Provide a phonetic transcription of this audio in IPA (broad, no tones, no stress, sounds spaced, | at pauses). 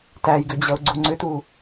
t æ j ɡ ʏ d͡ʑ ʌ ʊ̯ ɡ͡ǀ u ŋ͡ǀ ʏ t u